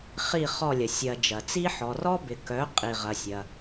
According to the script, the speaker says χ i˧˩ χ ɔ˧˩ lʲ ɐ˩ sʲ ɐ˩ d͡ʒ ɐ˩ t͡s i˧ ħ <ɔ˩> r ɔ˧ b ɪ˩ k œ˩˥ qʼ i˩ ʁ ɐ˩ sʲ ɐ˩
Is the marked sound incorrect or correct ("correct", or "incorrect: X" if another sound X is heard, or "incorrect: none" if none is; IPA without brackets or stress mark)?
correct